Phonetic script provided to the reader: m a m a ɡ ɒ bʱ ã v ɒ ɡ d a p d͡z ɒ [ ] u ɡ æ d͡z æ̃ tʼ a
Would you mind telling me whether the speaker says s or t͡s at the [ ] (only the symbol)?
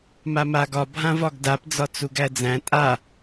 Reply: t͡s